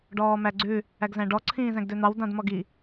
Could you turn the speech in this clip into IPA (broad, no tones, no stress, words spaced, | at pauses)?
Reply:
ɖɔːmæɡ͡ǀʉ | æɡzæ̃ɖɔ ǀʰĩːzæ̃ɡdøn̪ɑw dɑ̃dmɔɡi